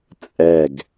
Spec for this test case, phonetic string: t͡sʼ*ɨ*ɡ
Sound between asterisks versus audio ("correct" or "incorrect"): incorrect